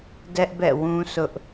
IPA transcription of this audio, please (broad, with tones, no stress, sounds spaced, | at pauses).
d ɛ˦ ʔ b ɛ̰˦˨ w ũ˦ s ʊ˦ ʔ